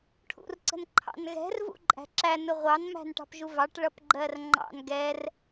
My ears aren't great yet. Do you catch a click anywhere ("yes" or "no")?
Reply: yes